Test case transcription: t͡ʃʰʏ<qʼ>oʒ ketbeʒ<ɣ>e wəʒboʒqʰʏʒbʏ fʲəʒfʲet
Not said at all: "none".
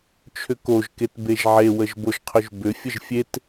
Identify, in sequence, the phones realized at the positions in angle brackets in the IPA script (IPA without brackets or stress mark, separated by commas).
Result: k, ʕ